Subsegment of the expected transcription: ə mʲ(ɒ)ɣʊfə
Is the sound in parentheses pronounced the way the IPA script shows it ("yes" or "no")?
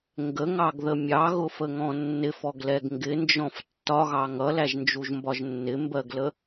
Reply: no